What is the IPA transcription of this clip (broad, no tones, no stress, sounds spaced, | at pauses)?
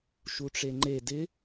ʃ u ʈ͡ʂ e ŋ͡ǃ e d ɪ